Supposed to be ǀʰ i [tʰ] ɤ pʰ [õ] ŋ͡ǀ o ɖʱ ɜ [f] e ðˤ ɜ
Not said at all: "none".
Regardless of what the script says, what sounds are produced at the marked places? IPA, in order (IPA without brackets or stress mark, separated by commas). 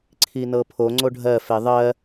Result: n, o, f